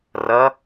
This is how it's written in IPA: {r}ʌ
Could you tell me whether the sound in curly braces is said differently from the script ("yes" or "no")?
no